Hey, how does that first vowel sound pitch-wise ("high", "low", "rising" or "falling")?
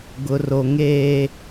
low